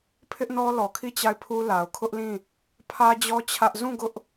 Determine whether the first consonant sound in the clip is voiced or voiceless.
voiceless